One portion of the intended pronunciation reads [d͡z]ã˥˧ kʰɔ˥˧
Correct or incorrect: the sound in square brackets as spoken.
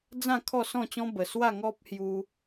correct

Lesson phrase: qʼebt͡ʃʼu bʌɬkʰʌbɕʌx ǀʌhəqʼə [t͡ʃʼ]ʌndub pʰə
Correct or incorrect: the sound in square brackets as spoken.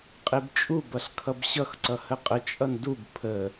correct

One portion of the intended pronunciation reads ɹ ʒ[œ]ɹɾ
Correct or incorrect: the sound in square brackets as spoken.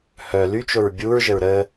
incorrect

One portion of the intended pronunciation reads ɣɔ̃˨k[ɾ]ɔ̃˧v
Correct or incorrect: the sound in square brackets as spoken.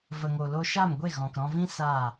correct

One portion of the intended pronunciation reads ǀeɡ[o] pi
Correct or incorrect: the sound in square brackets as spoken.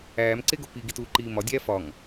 correct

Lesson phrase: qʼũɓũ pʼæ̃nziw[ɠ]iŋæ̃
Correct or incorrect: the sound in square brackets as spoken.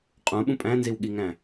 correct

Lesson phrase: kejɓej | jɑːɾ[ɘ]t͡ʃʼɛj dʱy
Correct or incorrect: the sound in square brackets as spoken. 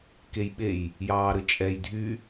correct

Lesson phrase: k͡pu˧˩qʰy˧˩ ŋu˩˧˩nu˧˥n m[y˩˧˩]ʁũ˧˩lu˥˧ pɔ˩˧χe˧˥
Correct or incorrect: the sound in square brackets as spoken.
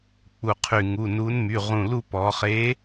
correct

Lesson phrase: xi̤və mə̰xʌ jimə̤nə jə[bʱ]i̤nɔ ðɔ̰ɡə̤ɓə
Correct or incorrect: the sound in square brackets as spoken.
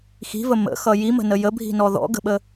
correct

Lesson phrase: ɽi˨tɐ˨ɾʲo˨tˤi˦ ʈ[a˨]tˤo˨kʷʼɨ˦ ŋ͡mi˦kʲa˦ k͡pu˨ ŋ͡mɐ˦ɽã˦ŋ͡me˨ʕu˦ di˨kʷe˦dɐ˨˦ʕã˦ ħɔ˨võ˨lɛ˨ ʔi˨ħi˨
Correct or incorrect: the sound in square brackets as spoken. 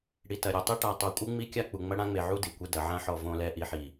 correct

